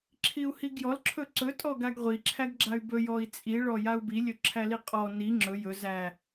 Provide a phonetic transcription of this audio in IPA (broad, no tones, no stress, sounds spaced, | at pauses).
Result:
ǁʰ i u̯ h i ɡ j ɔ l ǁʰ ɵ ǀ ɵ tʼ ɔ ɡ a ɡ ʁʷ i ǁʰ æ ɡ ɡ͡ǁ a y̯ b ɵ j ɔ i̯ t͡sʼ i ɭ ɔ j a u̯ b i lʲ ɵ ǁʰ æ l i qʼ ɔ n i ŋ͡ǁ ɵ j ɵ z æ